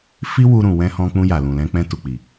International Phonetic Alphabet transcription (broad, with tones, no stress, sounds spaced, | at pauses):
f i˦ w u˧ ɾ ũ˨ w ɛ̃˧ h ɔ̃˧ k͡p ũ˧ j a˨ l ũ˨ l ɛ̃˧ k͡p ɛ̃˧ t u˨ k͡p i˨